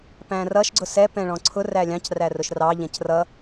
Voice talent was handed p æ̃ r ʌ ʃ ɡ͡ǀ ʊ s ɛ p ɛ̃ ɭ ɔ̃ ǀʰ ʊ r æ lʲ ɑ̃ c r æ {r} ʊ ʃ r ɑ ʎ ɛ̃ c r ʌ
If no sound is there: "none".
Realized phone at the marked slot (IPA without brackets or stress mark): r